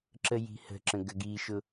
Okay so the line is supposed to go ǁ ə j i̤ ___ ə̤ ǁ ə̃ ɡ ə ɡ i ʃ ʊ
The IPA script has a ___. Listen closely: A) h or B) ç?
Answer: A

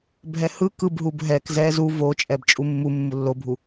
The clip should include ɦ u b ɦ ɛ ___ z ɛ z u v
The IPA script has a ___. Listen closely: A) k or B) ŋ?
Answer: A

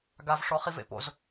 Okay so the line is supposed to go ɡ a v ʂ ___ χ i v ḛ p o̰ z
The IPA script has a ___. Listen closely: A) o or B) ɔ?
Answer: B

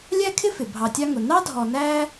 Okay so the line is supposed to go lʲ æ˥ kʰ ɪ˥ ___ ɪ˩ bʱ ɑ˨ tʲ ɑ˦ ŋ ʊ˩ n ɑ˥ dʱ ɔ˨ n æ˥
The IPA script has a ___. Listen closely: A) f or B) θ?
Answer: A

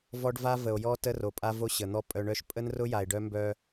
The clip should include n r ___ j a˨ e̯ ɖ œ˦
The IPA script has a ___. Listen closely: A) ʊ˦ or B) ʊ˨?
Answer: A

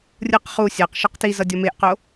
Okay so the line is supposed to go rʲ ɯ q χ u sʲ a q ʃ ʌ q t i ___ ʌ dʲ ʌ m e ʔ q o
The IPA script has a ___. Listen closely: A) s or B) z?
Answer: B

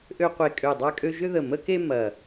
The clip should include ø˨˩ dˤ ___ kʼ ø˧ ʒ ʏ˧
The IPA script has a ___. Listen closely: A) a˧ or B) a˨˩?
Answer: A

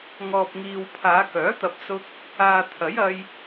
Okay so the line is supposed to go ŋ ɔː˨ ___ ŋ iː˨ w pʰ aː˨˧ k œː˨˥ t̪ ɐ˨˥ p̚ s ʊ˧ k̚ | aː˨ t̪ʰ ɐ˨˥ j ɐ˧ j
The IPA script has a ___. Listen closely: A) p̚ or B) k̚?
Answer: A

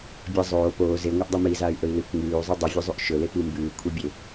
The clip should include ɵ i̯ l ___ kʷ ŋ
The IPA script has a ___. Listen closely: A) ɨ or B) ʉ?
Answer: A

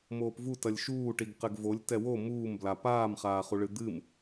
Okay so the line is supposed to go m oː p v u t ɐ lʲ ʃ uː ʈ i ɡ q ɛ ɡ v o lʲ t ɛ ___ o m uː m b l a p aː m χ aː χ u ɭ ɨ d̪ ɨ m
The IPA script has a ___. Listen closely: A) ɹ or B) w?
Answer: B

